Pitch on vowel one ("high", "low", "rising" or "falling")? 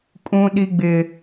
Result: low